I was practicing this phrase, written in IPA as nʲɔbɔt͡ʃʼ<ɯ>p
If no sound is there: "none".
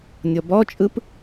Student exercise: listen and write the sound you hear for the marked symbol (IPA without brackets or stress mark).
ɯ